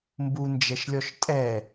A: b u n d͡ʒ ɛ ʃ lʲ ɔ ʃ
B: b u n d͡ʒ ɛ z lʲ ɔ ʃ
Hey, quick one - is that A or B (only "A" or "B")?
A